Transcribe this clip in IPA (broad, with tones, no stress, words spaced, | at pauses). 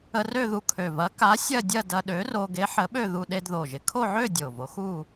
ə˧rø˥˧ðu˧ kʰø˨˩vɐ˨˥ ka˨˥ sʲɐ˥˧dʲɐ˥˧ dɐ˧ɗø˨˥ro˧ ɡe˨˥ħə˨˥ɓø˥˧ ðu˧ɗe˧dðo˨˩ʒɪ˨˩ kʰo˥˧ʕø˥˧ dʲo˨˩vo˨˥xu˥˧